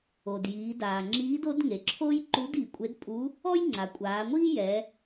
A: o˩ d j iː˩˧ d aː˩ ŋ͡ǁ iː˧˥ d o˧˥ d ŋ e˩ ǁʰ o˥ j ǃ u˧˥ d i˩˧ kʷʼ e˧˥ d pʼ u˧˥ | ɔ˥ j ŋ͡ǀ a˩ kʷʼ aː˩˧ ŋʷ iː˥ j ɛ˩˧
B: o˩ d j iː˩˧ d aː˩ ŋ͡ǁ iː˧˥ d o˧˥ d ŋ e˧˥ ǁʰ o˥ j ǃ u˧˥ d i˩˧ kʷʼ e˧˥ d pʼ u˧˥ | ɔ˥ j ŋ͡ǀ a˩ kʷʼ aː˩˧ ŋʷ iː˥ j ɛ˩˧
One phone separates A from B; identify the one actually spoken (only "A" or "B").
A